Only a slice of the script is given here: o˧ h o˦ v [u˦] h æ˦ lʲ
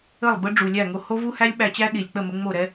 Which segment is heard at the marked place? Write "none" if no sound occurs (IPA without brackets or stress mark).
u˦